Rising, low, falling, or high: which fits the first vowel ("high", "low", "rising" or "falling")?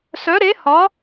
rising